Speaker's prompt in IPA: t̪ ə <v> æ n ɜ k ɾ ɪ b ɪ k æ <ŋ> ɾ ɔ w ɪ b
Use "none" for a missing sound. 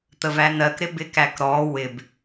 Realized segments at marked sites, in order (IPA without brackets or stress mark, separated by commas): v, k